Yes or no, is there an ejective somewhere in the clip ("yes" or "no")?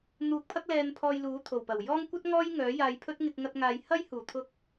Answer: no